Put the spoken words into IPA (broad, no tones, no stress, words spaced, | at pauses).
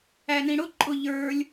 ænĩɽʊ ǃʼʊ ʎə˞lʲ